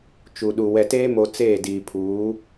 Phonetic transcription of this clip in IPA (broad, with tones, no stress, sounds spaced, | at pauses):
t͡ʃ u˨ ɗ u˨ w ɛ˨ t eː˦ m o˨ t͡s eː˦˨ d iː˨ pʰ uː˨˦